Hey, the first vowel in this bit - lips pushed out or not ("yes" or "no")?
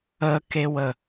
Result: no